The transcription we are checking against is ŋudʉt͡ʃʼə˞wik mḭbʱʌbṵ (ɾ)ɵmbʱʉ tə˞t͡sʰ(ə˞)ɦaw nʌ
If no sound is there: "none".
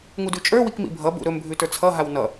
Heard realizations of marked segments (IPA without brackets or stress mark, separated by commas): ɾ, ʌ